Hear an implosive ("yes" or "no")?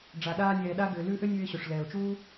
yes